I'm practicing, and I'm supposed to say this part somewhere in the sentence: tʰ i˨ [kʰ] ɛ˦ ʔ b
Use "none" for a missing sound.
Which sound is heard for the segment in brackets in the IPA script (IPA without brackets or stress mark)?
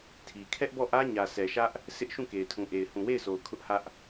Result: kʰ